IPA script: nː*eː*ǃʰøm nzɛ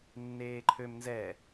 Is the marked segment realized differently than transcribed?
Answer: no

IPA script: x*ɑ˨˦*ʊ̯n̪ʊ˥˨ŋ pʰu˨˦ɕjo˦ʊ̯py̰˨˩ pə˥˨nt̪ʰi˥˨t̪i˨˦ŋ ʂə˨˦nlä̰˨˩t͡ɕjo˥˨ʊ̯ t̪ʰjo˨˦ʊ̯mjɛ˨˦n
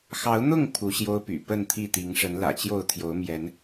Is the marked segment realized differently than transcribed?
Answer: no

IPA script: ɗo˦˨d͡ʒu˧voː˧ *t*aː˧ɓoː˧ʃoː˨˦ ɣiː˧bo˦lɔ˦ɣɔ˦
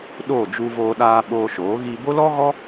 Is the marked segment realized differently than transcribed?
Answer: yes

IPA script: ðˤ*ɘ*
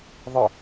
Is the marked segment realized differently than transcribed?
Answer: no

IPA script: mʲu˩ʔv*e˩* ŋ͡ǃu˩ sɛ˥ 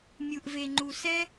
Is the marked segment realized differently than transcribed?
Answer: no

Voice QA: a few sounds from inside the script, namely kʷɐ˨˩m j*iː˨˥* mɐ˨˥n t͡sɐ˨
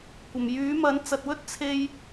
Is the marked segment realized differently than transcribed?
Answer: yes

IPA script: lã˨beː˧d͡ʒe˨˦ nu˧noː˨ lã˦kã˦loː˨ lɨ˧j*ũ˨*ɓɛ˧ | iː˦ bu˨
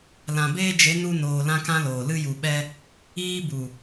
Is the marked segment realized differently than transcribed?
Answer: yes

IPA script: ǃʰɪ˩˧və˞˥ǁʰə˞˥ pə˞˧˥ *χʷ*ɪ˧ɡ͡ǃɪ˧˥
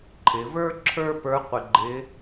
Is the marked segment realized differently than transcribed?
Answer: yes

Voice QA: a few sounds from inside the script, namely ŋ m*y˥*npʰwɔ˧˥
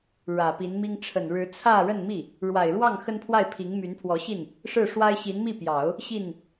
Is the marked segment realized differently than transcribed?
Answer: yes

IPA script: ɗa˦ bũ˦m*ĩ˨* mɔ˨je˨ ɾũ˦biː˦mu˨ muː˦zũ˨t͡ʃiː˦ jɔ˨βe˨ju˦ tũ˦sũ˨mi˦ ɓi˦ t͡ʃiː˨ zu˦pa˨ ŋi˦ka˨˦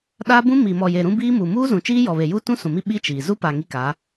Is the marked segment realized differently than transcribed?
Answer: yes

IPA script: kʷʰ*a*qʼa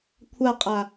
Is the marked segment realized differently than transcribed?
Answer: no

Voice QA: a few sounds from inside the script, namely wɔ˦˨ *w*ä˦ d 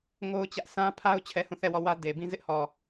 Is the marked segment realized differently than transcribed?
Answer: no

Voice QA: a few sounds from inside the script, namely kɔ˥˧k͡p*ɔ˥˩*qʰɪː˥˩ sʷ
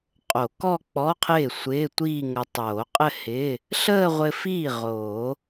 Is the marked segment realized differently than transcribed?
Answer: yes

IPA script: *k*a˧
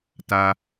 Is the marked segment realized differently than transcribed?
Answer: yes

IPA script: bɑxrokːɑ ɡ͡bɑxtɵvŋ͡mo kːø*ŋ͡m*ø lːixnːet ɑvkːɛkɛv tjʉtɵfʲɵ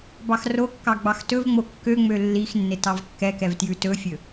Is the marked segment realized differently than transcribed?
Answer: no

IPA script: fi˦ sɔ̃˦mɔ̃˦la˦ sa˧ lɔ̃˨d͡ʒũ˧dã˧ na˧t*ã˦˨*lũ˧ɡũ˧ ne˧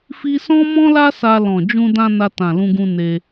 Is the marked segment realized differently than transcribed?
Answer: yes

